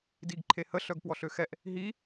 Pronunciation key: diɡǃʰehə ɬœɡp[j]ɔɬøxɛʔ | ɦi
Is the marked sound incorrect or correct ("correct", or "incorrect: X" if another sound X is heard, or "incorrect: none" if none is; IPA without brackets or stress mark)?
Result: incorrect: w